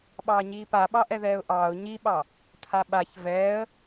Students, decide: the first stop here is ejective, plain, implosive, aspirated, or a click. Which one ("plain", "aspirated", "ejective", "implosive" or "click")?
implosive